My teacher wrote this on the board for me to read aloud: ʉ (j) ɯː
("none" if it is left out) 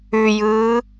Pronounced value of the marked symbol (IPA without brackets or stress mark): j